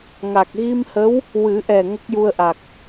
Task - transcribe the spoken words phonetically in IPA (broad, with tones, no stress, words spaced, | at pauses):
ŋa˨˩k̚ɣi˧mhə˧˥w | wɨ˨˩˦ʔɛ˨˩ ŋə˦˥k̚ju˧ə̯ʔa˨˩k̚